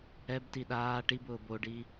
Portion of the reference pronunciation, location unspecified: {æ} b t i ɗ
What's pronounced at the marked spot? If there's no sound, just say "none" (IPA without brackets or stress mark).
ɛ